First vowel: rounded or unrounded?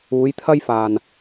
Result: rounded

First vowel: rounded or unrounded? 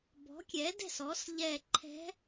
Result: rounded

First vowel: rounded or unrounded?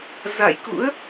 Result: unrounded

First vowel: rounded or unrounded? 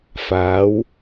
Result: unrounded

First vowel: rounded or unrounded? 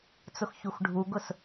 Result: rounded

